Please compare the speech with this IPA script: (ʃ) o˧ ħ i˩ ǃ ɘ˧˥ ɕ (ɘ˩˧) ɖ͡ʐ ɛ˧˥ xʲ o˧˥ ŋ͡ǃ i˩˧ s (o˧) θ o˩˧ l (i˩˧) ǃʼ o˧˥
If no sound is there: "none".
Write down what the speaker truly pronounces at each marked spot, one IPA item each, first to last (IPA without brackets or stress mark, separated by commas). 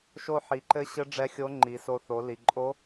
ʃ, ɘ˧˥, o˧, i˩